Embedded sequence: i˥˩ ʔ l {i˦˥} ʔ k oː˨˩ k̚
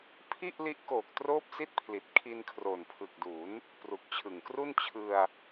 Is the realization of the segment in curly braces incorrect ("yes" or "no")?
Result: no